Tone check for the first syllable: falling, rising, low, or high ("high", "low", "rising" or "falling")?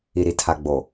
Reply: low